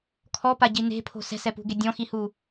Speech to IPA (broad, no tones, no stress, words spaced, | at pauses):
kʰɔpaɟi ne̤pʰo̤ sɛ̤sɛpṳɡe dʲɔ̃xihu